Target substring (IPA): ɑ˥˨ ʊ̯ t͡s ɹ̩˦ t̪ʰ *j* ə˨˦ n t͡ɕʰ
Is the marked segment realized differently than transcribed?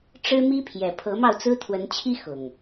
yes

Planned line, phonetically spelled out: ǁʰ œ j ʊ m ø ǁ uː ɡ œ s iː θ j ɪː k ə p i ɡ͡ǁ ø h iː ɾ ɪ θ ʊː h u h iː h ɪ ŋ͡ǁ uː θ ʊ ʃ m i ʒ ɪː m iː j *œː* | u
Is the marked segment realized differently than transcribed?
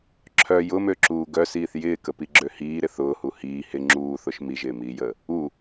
yes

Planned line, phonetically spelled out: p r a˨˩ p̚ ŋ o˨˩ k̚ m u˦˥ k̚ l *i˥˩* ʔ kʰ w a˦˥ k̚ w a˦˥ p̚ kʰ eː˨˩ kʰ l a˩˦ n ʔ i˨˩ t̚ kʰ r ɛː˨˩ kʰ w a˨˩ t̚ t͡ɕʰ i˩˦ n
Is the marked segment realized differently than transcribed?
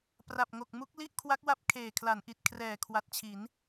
no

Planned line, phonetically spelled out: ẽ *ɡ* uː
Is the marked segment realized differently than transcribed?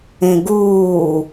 no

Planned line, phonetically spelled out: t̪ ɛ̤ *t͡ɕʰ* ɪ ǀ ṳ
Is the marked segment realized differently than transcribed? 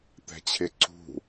no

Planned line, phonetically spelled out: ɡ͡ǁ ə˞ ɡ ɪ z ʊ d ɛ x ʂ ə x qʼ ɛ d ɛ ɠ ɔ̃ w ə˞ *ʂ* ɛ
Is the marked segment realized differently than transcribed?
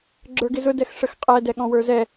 yes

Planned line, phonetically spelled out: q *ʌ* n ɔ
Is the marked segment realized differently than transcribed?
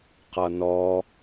no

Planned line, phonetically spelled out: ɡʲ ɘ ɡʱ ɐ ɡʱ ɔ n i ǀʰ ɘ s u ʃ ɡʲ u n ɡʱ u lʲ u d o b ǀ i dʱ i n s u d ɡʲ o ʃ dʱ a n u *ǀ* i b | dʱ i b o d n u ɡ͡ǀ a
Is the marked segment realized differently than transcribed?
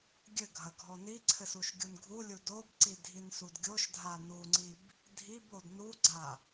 yes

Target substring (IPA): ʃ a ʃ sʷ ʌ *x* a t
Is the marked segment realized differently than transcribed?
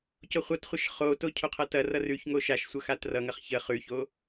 no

